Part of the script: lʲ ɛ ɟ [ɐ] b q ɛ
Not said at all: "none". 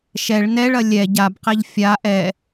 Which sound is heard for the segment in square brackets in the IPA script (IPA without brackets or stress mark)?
a